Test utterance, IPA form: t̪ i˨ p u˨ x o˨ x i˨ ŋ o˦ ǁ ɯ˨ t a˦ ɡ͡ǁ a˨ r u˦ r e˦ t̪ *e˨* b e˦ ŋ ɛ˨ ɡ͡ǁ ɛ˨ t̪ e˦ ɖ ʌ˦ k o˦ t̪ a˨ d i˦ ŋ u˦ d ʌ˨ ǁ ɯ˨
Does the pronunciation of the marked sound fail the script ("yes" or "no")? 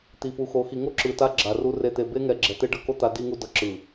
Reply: no